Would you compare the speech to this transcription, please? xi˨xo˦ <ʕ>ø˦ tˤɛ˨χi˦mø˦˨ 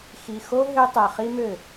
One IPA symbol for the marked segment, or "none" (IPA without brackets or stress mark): ɦ